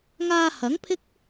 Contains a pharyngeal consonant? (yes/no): no